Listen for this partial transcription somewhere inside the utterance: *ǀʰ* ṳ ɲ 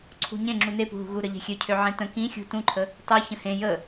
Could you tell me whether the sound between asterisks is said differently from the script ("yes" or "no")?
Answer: no